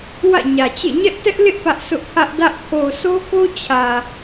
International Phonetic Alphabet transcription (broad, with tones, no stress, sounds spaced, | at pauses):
w ä̰˦˨ ɲ ä˨ t͡ɕ ḛ˦˨ ɲ ɛ˦ ʔ t ɛ˦ ʔ l ɪ˦ ʔ p ä˦ ʔ s ʊ˦ ʔ pʰ ä˦ ʔ d ä˦ ʔ kʰ o˨ s o˦ k o˦ t͡ɕʰ ä˨